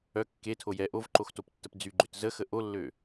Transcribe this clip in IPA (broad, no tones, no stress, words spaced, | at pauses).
œ kːetʰo jɛ ʔovǃoxtoptːəp d͡zyɡ͡ǃøt zəxə ʔolːø